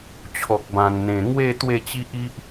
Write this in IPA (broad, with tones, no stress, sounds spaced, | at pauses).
t͡ɕʰ ɔ˨ k̚ b ã˨˩ n n̪ ẽ˨˩ ŋ w e˥˧ t̪ w e˥˧ t͡ɕ i˦ ʔ i˦ ʔ